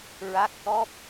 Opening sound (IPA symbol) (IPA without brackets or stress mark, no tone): ɹ